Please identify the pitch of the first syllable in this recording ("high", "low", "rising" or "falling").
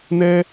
high